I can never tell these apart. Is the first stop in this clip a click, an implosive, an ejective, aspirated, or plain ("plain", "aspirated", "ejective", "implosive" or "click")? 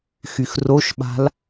implosive